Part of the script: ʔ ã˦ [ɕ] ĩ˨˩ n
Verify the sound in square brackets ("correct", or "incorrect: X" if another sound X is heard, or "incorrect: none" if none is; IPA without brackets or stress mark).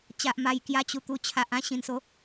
correct